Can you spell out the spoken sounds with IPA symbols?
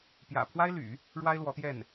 p j ä̰˨˩ pʰ w a˥ ɪ̯ l y̰˨˩˦ | ɻ w a˥ ɪ̯ l w ɔ˧˥ t̪ j ɛ˥˩ n

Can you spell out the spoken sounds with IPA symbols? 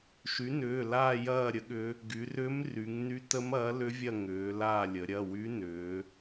ʃ y˩˥ n ʏː˩˧˩ l aː˦˨ j ɐː˦˨ ɾʲ ə˩˥ ɠ ʏ˧˥ | ɡ y˩˧ r ʏː˧˥ m r y˩˧ ŋ n y˧˥ t ə˧˥ m ɐː˩˥ l ʏ˧˥ vʲ ɐ˦˨ ŋ ʏː˩˧ l aː˦˨ lʲ ə˩˧ ɾʲ ɐ˩˧˩ w y˧˥ n ʏː˩˧

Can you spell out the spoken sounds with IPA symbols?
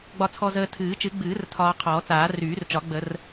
ɡ͡b ɒ˧ t͡sʰ ɔ˧ z əː˧ tʰ ɨː˨˩˦ t͡ʃ ɨ˨˩˦ ɡ͡b ɨː˨˩˦ r tʰ ɒː˧ qʰ ɔː˨˩˦ t͡s aː˨˩˦ r yː˨˩˦ r t͡ʃ ɒ˨˩˦ ɡ͡b ə˨˩˦ r

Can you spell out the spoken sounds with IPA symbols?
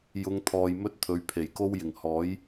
j ʊ˨˧ ŋ t̪ʰ ɔː˨ j m ɵ˥ t̚ t̪ʰ ɵ˨˧ ɥ pʰ e˨˩ j k o˥ w j ɪ˨˩ ŋ h ɔː˨˥ j

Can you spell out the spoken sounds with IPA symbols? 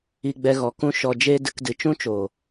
i˦ ɡ͡b ɛ˦ ɣ ɔ˧ k ũ˦ ʃ ɔ˧ d͡ʒ eː˦ d ɨ˧ k d ɨ˨ t͡ʃ ũ˦ t͡ʃ oː˨

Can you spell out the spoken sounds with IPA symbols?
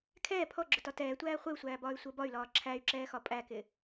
kʰ ɛː pʰ ɔ ɡ͡ǁ ʊ t ɒ t ɛː tʷ æː χʷ ɪ u̯ sʷ æː b ɒː y̯ sʷ əː b ɒ y̯ l ɒː ǁʰ æ y̯ ǁ ɛː x ɒ pʼ æ k ɪ

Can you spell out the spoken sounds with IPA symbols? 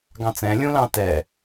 ɡ ɑ̃ t͡s ɛ̃ lʲ ũ l ɑ̃ t ɛ

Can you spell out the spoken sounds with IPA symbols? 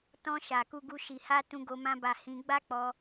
t ɔ̃˧ ʃ a˨ k u˧ ɡ u˧ ʃ i˨ h a˧ t ũ˧ ɡ o˧ m ã˧ b a˨ h ĩ˧ ɡ͡b a˦ k͡p ɔ˧

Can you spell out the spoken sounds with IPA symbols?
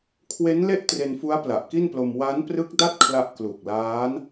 kʰ w e˦˥ n l e˥˩ ʔ t r e˧ n f u˦˥ a̯ p l a˨˩ ʔ k i˥˩ n p l o˧ m w a˦˥ n p r ɯ˦˥ k̚ d a˥˩ t̚ kʰ l a˥˩ ʔ k l u˨˩ k̚ l aː˦˥ n

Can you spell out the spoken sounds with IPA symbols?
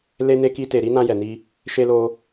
l e˧ n e˧ k i˧ t e˨ ɾ i˧ n ã˧ j ɛ˨ n i˧ | ʃ e˧ l o˧

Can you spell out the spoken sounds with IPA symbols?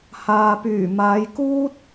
h aː˨ p yː˨˩ m aː˨˧ j k uː˥ t̚

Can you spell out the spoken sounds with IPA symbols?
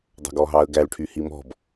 dˤ ɑ̤ ɡ ɔ ɦ ɑ ə̯ ɡ æ l ʈʰ y h i m ɔ̤ b

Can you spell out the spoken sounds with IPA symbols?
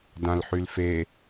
d ã l ħ y l f e

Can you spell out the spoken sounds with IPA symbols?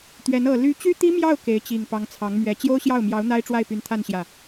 t̪ ɥ ɛ˧˥ n ɤ˨˩ l y˧˥ t͡ɕ y˥ t̪ i˥ m j ɑ˥˩ ʊ̯ k e˧˥ ɪ̯ t͡ɕ i˨˩ ŋ p ɑ˧˥ ŋ t͡sʰ ɑ˧˥ ŋ m ɥ ɛ˧˥ t͡ɕ j o˥ ʊ̯ ɕ j ɑ˥˩ ʊ̯ m j ɑ˧˥ ʊ̯ n̪ a˥ ɪ̯ ʈ͡ʂ w a˥˩ ɪ̯ p y˧˥ n t̪ʰ a˥˧ n ɕ j ä˥˩

